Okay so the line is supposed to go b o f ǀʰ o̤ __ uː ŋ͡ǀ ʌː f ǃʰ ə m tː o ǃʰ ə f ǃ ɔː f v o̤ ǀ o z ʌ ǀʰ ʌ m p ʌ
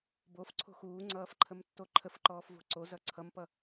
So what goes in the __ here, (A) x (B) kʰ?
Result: A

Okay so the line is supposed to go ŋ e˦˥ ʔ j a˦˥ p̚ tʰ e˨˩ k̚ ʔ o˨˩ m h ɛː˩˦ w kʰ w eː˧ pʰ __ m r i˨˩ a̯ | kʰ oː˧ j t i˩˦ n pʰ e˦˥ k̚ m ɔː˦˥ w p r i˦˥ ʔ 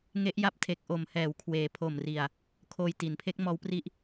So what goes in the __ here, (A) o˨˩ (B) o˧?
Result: A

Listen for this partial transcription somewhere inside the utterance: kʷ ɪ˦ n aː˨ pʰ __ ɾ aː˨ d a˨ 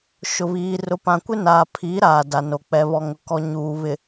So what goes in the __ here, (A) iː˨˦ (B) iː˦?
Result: A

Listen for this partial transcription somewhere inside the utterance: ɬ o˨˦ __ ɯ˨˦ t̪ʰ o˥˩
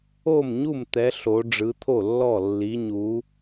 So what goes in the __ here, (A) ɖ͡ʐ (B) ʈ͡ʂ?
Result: A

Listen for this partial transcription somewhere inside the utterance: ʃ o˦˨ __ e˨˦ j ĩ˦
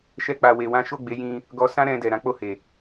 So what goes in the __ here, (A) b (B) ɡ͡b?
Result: B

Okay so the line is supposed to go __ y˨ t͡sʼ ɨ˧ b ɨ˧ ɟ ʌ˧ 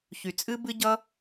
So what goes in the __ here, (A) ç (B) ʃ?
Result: A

